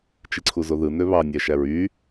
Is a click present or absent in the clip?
present